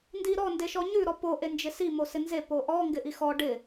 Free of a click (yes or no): yes